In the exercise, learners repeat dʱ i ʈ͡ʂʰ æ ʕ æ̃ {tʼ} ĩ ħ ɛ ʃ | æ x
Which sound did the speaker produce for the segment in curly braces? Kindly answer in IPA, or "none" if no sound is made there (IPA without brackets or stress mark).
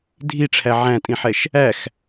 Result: tʼ